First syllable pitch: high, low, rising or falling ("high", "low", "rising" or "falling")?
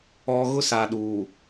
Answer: low